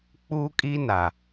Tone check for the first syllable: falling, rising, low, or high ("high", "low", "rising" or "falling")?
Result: high